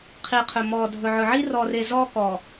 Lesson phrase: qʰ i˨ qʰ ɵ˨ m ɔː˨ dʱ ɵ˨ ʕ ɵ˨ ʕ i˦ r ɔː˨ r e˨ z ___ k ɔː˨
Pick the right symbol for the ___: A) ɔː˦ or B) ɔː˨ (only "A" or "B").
A